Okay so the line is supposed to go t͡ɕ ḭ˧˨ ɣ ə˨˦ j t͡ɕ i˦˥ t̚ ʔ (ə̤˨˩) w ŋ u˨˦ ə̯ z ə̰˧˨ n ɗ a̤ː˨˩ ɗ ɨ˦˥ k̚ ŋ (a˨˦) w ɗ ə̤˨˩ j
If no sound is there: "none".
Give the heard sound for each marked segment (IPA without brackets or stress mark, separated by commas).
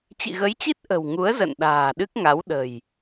ə̤˨˩, a˨˦